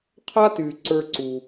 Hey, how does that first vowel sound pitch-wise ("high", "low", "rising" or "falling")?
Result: high